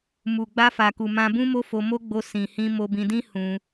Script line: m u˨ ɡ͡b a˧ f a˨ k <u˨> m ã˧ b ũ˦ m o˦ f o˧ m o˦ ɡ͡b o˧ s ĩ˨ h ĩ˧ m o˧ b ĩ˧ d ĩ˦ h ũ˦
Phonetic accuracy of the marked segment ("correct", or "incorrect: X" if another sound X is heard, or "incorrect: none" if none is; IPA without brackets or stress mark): correct